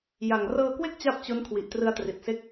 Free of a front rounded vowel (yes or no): yes